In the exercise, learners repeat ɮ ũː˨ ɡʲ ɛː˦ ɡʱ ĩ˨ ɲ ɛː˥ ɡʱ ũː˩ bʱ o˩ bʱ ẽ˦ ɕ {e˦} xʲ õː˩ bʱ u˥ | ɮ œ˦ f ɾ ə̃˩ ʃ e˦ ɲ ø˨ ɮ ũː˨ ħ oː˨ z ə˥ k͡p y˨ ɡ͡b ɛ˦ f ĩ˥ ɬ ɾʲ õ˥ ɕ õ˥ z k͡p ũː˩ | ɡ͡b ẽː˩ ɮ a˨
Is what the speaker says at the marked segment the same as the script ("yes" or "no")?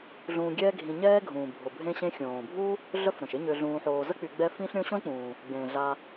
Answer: no